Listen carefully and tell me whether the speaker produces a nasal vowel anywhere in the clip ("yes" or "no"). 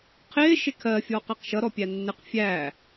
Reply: no